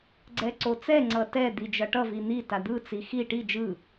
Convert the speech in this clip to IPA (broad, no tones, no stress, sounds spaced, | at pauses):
ɡ͡ǀ ɛ ǀ o t͡s ɛ ŋ͡ǀ ʌ t ɛ d̪ i d͡ʒ ʌ ʈ ʌ v i n̪ i t a d̪ ɯ t͡s i x i ʈ i d͡ʒ ɯ